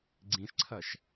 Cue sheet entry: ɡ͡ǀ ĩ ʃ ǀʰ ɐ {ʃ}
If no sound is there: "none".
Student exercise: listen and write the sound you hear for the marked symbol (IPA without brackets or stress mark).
ʃ